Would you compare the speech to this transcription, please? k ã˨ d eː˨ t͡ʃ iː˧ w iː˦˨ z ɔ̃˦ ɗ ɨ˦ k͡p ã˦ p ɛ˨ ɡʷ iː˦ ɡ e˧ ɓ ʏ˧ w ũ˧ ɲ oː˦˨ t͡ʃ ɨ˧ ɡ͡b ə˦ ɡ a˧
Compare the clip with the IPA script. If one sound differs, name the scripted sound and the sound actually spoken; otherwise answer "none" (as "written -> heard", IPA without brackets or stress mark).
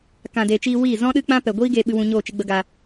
ʏ˧ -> ɨ˧